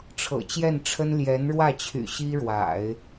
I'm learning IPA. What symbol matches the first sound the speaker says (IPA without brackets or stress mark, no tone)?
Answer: ʈ͡ʂʰ